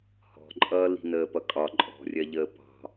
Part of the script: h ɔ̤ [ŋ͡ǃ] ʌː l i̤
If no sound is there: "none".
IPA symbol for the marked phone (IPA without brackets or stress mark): ǃʼ